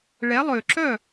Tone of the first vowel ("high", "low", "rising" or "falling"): rising